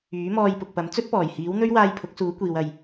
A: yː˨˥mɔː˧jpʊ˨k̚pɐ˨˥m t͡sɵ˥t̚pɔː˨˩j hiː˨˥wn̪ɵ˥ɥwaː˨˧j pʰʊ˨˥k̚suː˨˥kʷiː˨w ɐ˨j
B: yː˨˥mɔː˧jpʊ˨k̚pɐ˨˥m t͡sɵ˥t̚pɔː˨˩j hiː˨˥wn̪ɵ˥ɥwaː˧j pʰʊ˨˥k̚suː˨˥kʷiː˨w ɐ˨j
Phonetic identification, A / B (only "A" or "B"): B